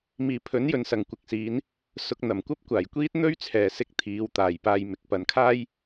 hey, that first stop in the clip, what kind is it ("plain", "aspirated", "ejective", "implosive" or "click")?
aspirated